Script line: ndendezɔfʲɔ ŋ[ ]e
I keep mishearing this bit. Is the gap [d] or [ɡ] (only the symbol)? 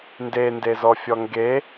ɡ